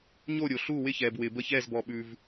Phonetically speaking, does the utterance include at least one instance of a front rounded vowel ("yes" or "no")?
no